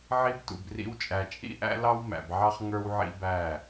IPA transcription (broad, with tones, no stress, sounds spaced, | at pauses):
ʕ i˦ b t ṵ˨ b r ḭ˦ w t͡ʃʼ æ˨ t͡ʃʼ ḭ˦ ʔ æ̰˦ l ɑ˦ w m æ̰˨ b ʕ ɑ˦ χ ŋ ə˞˦ w ʕ ḭ˦ b æ˦˨